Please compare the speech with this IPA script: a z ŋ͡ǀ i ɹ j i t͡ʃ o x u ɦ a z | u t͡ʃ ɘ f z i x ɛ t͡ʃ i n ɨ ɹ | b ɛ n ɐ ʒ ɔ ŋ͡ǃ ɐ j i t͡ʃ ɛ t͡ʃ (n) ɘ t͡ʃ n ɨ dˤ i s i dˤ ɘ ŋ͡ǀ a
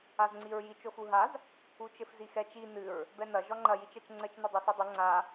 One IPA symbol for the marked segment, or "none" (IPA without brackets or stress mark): ŋ͡ǀ